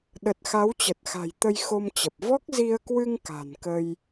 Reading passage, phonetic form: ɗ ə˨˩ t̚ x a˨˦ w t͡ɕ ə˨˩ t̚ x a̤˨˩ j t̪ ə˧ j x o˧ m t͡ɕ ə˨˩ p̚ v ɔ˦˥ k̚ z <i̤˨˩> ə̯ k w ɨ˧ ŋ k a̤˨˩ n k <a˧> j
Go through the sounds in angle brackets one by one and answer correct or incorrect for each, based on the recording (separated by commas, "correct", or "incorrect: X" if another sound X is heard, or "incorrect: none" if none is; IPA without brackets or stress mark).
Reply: incorrect: i˧, incorrect: ə˧